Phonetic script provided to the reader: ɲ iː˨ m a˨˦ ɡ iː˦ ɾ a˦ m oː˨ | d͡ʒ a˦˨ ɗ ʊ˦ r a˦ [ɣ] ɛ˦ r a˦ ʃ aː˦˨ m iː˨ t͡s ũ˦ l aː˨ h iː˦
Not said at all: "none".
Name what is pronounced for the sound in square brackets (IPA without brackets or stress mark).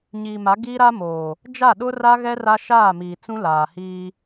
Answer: ɣ